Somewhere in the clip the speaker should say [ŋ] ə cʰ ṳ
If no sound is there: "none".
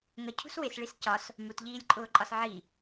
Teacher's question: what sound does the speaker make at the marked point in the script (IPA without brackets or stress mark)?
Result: ŋ